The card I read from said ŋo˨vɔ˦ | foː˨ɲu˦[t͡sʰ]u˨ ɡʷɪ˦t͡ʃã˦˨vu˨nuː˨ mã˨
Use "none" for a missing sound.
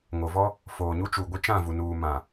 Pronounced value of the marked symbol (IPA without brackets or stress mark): t͡ʃ